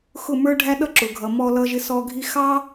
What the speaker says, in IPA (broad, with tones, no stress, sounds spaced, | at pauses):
x ʊ˦˨ m ə˞˦ ɖʱ æ˦ ɗ ʌ˦ ǁ ʊ˨ ɡʱ ʌ˨ m ɔ˧ l ʌ˧ ʒ ɪ˧ s ɔ˧ ɡʱ i˦ x ɑ˦